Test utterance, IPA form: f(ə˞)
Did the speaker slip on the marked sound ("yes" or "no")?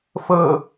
yes